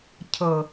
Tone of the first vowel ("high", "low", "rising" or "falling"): low